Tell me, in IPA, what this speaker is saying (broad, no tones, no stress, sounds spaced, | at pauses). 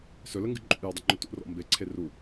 s ɵ l ə ŋ ɡ ɨ ǃʼ ṵ j ɔ dˤ ə ŋ͡ǃ ɵ t ṵ r ɔ̰ m b e ǀʰ e r u